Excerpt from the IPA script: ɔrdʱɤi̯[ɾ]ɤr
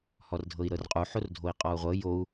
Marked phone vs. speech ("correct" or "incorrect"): correct